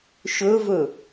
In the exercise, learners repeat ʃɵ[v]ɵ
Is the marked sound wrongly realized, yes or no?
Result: no